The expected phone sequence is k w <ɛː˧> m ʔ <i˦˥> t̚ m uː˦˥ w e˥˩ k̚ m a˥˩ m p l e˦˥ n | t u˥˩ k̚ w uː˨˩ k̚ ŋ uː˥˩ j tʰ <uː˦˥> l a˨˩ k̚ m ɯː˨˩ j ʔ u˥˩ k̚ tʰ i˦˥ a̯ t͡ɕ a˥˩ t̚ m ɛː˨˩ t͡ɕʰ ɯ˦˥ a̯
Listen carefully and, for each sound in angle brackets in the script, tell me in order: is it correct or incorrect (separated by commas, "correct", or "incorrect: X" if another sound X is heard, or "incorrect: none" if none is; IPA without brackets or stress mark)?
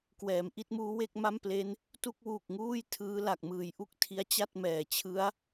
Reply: incorrect: ɛː˩˦, incorrect: i˥˩, incorrect: ɯː˦˥